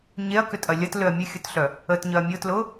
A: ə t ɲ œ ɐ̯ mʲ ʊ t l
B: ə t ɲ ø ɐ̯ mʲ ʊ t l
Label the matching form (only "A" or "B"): A